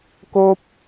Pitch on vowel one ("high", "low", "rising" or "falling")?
high